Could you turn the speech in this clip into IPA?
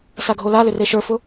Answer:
s a ɡʱ o l a l ʏ r e ʃ ə˞ f ʊ

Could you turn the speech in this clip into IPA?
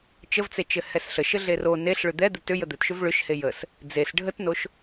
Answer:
t͡ʃ ə v t͡s e t͡ʃ ɘ h ɛ s ɬ ə ʃ ɘ ɮ e r o n e ɬ ɭ ʏ d̪ ɛ d̪ ɘ t ʏ j ə d̪ ɘ t ʃ ʏ v ɭ ʏ ʃ h e j ə s | d͡z e s ɖʱ ə t n o ʃ

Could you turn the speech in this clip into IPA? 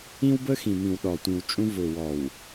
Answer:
ĩ˦ w b ə˦ x ĩ˨ m ĩ˨ w ɗ ɔ˨ tʷ ĩ˨ w t͡ʃʼ ũ˦ v ʊ˨ w ɔ˨ w

